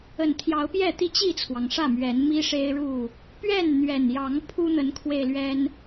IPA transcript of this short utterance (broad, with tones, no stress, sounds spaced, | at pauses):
ə˨˩ n t̪ʰ j ɑ˨˦ ʊ̯ p j ɛ˥˨ t̪ i˥˨ t͡ɕ i˥˨ t͡sʰ w ɑ˩ ŋ ʂ ä˥˨ m ɥ ɛ˨˦ n m i˦ ʂ e˦ ɪ̯ ɻ u˥˨ | p ɥ ɛ˥˨ n n̪ ɥ ɛ˨˩ n j ɑ˨˦ ŋ pʰ u˦ n̪ ə˨˦ n kʰ w e˧ ɪ̯ l ɥ ɛ˦ n